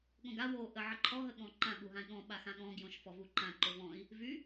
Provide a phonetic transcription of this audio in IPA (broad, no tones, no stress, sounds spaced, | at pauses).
ɠ õ ɡ a w o ʔ ə ʕ ə ǃʰ ɔ ɦ ə ɠ ɔ̃ ǃ ã ɠ u ɦ ã i̯ ɠ ɔ̃ ɓ a x ã ɠ ɔ̃ ɡ j õ ʃ f ɔ v u ǃ ã ǃ o v ɔ̃ i̯ | v y